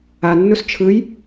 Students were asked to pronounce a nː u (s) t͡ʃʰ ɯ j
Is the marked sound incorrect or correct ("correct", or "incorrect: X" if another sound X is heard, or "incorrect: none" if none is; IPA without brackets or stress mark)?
correct